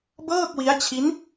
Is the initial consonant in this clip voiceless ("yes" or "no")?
no